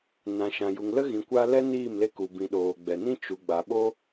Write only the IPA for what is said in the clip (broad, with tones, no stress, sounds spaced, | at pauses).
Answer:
n ã˨ ʃ ã˨ j u˨ ŋ l ə˦ ɣ ĩ˨ kʷ a˧ l ɛ˦ n iː˦˨ m l e˧ k u˨ b ĩ˨ ɗ oː˨ ɡ͡b ɛ˨ n ĩ˦ t͡ʃ u˨ ɡ͡b a˨ ɓ o˦